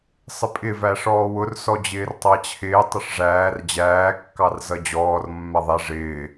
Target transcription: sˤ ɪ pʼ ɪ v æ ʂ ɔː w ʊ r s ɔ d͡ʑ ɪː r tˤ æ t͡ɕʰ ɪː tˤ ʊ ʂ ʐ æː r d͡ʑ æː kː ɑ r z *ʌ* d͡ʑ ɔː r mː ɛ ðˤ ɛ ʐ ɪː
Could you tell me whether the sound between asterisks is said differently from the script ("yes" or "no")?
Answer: no